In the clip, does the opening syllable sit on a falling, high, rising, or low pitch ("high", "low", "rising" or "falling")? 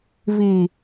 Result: low